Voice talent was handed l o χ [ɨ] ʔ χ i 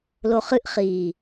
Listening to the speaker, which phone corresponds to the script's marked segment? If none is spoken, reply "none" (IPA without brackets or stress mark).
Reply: ɨ